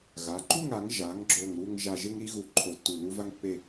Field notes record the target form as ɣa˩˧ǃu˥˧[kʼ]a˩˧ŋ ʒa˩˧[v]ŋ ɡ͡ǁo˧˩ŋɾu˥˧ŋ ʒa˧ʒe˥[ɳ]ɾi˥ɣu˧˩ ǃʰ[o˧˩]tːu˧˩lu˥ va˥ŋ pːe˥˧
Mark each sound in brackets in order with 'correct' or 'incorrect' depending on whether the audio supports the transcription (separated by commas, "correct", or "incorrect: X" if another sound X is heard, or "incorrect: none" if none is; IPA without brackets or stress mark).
incorrect: ŋ, incorrect: none, incorrect: ŋ, correct